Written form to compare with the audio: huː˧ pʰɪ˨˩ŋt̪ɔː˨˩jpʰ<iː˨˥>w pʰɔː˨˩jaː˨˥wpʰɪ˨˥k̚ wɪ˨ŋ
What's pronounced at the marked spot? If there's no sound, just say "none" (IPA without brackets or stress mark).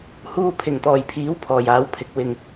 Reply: iː˨˥